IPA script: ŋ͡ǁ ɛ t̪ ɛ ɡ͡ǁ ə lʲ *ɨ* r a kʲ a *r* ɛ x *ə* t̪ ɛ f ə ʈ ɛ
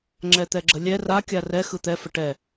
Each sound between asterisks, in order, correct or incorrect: incorrect, correct, incorrect

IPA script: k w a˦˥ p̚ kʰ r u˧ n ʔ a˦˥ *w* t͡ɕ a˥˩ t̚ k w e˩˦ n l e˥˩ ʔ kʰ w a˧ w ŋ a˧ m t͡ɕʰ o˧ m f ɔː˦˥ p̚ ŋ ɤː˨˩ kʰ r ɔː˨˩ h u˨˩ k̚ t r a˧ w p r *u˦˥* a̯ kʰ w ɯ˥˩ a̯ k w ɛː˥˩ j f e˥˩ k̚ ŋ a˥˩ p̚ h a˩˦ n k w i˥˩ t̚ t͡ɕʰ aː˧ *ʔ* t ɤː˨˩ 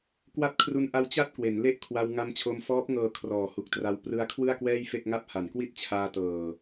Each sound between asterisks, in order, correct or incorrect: correct, incorrect, incorrect

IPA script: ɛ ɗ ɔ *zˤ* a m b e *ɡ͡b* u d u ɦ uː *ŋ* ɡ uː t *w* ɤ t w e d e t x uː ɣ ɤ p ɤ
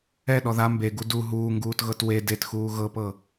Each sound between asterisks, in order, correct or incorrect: incorrect, incorrect, correct, incorrect

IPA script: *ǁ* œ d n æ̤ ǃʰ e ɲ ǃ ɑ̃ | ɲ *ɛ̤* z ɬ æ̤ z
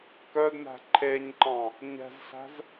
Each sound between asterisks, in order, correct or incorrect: incorrect, correct

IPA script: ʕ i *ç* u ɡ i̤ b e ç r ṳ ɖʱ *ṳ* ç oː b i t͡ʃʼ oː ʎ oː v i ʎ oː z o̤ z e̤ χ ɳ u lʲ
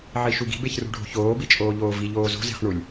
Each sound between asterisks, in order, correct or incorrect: incorrect, incorrect

